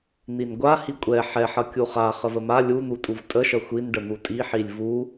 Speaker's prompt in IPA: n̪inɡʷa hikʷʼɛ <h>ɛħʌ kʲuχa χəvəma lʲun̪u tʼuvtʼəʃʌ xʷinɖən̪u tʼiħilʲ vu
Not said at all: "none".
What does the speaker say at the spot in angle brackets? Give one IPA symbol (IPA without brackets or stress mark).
ħ